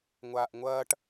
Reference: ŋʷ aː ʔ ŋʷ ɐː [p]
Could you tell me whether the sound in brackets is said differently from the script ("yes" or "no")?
yes